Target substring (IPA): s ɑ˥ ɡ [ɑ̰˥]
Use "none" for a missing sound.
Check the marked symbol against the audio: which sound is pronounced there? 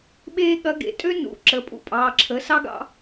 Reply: ɑ̰˥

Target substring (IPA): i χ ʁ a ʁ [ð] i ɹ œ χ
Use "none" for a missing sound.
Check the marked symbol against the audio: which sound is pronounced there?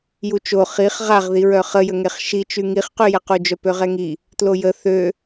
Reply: ð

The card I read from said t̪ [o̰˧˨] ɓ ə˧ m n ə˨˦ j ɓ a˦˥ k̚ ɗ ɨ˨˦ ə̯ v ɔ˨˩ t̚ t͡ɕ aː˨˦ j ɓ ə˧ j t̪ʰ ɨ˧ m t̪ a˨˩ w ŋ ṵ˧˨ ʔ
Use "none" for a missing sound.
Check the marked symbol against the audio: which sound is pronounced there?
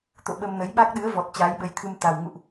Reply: o̰˧˨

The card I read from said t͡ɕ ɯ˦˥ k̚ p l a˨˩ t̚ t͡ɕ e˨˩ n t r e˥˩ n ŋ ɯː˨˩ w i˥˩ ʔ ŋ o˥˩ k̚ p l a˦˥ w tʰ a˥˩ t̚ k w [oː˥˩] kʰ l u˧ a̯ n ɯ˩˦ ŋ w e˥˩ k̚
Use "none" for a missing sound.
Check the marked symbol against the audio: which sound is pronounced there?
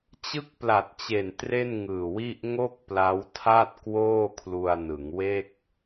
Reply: oː˥˩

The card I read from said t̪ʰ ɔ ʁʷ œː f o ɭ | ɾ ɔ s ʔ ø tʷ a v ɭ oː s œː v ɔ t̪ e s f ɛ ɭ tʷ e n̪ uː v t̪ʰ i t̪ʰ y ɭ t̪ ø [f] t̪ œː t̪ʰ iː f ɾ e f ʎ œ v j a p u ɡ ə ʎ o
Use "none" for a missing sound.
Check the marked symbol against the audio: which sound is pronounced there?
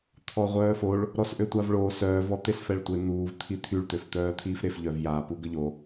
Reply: f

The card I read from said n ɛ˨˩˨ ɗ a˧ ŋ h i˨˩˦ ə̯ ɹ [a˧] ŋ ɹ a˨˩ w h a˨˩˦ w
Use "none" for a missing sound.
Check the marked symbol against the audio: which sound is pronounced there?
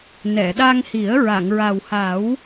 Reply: a˨˩˨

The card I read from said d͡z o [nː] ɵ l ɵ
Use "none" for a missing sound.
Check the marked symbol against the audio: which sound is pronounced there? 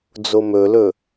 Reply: m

